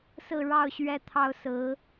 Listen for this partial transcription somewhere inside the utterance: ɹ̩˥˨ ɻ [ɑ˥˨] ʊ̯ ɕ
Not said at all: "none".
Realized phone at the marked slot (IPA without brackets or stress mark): ɑ˥˨